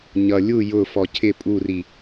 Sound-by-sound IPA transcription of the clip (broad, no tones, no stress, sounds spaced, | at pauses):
ɲ ʌ lʲ u j ʊ f ɔ cʰ ɪ pʼ u r i